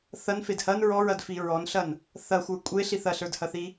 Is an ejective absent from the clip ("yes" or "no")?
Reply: no